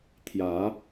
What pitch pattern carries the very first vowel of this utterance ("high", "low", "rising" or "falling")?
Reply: rising